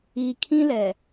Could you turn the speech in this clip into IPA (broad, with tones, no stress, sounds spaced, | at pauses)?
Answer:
iː˨ kʰ ĩ˦ l ɛ˨